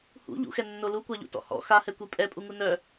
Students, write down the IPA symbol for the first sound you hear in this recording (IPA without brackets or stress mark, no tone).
h